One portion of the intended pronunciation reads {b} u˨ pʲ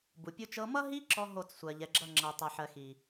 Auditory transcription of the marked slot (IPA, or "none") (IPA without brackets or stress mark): b